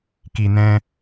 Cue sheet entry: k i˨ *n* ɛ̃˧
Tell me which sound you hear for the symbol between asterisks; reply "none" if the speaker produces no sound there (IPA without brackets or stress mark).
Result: n